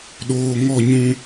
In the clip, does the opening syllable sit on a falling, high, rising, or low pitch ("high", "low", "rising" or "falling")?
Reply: low